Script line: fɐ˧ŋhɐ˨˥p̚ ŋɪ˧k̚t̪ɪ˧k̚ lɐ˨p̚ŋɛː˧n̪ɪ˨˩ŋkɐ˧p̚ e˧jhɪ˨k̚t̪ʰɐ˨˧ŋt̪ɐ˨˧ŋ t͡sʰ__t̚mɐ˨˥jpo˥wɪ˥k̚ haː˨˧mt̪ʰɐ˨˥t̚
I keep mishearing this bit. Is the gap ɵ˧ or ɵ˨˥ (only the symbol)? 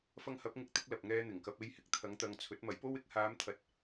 ɵ˨˥